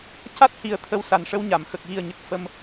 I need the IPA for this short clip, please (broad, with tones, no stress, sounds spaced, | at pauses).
c a˦˥ t̚ h i˨˩ ə̯ t̪ʰ ə˧ w s a˨˩ n ʂ ə˧ w ɲ a˨˩˨ m x ə˨˩ k̚ ɣ i˨˩ ə̯ ɲ ə˨˩ k̚ f ə˧ m